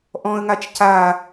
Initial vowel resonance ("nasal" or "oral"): nasal